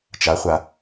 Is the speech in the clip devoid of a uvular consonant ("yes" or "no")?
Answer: no